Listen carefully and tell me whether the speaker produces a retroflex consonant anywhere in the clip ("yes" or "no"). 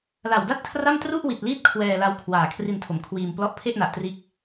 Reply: no